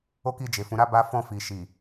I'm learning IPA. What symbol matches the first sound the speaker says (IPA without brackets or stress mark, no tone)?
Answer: o